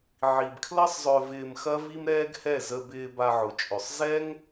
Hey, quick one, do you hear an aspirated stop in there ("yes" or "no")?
yes